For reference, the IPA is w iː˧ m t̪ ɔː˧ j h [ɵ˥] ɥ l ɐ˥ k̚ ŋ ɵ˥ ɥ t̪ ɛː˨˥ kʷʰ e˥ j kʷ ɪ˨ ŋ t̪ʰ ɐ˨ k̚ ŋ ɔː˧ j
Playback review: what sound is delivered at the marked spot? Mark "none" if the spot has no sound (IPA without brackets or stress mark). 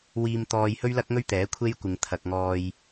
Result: ɵ˥